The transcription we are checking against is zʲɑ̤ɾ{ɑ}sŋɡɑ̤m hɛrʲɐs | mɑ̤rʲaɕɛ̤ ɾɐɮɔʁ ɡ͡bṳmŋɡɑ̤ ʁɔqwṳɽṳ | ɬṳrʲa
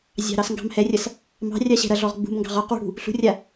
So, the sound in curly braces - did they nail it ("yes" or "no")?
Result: yes